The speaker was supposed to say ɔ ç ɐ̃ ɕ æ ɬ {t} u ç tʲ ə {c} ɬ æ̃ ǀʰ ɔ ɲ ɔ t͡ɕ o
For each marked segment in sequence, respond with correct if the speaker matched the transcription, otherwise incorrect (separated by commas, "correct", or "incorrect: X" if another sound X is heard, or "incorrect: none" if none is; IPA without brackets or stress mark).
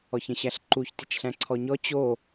incorrect: ǃ, incorrect: t͡ʃ